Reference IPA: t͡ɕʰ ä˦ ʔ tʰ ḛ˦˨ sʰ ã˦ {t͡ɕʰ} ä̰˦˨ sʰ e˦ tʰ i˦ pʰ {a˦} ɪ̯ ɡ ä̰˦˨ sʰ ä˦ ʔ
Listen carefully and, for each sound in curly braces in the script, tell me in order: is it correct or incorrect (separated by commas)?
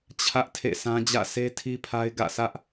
incorrect, correct